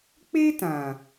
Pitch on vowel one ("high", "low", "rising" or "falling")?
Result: high